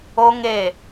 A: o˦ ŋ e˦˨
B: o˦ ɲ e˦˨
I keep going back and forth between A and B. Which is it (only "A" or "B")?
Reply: A